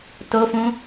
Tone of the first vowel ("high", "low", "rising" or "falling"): high